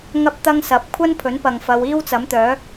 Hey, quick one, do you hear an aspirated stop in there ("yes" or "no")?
yes